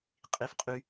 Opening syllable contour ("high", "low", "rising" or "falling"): low